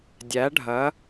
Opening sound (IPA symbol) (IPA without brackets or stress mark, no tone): dʲ